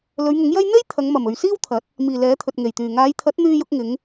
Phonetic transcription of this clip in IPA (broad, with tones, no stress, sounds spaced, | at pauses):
l ɵ˨˧ ɥ ŋ ʊ˨˥ ŋ j ɐ˥ j n̪ e˥ j t̪ʰ ɐ˨˧ ŋ m ɐ˨˩ m ɵ˨ ɥ s iː˥ w t̪ʰ ɐ˨˥ t̚ | m iː˨˩ l ɛː˨˥ t̪ʰ ɵ˨ t̚ ŋ e˨˩ j t̪ yː˨˩ ŋ aː˨˧ j t̪ʰ ɐ˨˥ t̚ n̪ yː˧ j ʊ˧ k̚ ŋ ɪ˨˧ ŋ